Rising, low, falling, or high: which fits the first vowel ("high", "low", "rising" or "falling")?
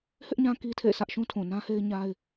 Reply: high